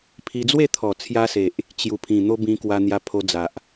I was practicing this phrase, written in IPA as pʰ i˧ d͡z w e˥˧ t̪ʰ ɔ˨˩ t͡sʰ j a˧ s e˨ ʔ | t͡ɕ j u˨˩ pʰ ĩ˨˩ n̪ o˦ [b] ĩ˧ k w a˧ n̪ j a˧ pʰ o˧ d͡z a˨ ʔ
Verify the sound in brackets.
correct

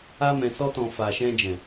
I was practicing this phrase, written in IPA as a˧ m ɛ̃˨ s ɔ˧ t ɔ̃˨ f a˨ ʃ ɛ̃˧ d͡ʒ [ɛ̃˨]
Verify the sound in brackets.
correct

